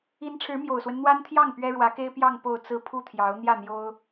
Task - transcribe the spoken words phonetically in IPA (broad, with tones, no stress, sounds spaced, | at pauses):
i˧˥ n ʈ͡ʂʰ ɻ̩˧˥ m j o˨˩ ʊ̯ s w ə˦ n n̪ w a˥ n t̪ʰ j ɑ˥˩ ŋ p ɥ ɛ˥ ɻ w ä˧˥ k e˥ ɪ̯ p j ɑ˥˧ ŋ p o˥˧ ʊ̯ t͡s ɹ̩˥˧ pʰ u˥˩ t̪ʰ j ɑ˧˥ ʊ̯ n̪ j ä˥˩ n̪ j o˥ ʊ̯